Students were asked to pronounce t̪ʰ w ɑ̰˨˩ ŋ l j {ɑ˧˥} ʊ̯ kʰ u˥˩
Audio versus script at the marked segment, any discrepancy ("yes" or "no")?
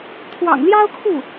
yes